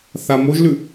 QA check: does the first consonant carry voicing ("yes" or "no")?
no